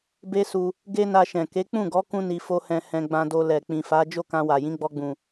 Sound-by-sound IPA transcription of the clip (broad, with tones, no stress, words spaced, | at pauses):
be˦su˧ | ɡe˦na˧ʃɛ̃˨ ke˨˦ k͡pũ˦˨ɡɔ˨˦kũ˧ ni˧fo˦hɛ̃˧ hɛ̃˧ɡ͡bã˧do˧lɛ˨ k͡pĩ˨fa˨˦ d͡ʒo˦˨kã˧wa˨jĩ˨˦ ɡ͡bɔ˧ɡ͡bũ˨